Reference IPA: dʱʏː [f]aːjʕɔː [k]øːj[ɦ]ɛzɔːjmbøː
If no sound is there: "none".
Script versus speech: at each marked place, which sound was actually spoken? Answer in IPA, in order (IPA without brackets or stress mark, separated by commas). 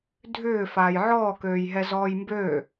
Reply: f, k, ɦ